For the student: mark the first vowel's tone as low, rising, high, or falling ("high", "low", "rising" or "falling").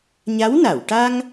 rising